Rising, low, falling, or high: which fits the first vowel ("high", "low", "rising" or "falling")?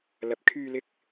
low